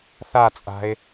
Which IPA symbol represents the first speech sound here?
θ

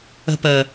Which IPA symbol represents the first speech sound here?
ə̤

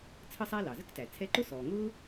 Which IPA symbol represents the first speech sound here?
t͡sʰ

